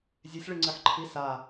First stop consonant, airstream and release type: click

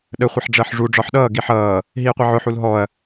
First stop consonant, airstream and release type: implosive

